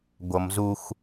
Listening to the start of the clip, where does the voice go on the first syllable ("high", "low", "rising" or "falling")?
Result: low